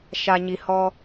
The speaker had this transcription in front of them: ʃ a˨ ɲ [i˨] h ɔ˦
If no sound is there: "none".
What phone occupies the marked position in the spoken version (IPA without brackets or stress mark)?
i˨